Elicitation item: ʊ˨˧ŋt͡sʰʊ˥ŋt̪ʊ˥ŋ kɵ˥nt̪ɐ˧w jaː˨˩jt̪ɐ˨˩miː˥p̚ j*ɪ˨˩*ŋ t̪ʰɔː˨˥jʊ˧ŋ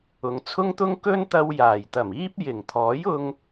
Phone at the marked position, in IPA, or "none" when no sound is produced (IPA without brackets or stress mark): ɪ˨˩